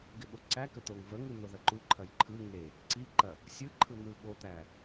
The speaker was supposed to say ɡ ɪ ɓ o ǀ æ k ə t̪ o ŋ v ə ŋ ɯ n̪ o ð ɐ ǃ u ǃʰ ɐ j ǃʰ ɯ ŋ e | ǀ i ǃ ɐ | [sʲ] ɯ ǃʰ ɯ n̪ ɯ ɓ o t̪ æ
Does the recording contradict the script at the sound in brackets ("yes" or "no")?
no